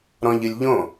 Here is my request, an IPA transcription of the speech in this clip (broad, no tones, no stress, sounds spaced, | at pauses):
ɾ ɔ̃ ʎ ɨ lʲ ʎ õ